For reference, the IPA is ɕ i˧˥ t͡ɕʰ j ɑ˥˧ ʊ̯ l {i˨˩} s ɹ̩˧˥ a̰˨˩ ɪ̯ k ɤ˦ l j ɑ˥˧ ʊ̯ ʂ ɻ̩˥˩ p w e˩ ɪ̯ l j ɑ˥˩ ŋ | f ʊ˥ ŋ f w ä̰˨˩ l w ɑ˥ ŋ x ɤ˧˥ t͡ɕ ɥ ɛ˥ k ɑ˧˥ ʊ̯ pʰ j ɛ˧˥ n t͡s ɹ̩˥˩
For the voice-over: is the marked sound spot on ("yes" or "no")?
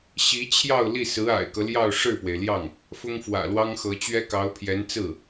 no